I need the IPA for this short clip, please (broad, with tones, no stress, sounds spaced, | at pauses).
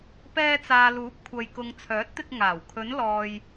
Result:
p ɛː˧ t͡s aː˨ l uː˨˥ p̚ kʷʰ ɐ˨ j k ʊ˨ ŋ t͡sʰ œː˨˥ t̚ t̪ ɪ˧ k̚ ŋ aː˨˩ w kʰ ɵ˨˧ n l ɔː˨ j